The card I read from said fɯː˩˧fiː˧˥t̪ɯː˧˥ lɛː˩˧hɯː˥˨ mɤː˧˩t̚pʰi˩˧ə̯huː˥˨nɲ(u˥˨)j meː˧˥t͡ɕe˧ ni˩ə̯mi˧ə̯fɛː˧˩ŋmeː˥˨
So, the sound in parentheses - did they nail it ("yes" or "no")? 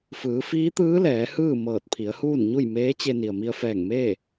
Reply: yes